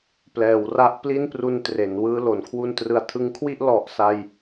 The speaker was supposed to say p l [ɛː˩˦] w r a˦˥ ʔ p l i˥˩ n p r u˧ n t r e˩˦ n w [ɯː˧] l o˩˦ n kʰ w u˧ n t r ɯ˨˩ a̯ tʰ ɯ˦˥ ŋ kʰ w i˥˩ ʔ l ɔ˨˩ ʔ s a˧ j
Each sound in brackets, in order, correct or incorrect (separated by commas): correct, correct